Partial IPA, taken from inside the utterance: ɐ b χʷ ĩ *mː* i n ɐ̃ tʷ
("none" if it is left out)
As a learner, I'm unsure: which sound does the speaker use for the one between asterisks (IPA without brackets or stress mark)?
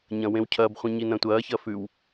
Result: ɲ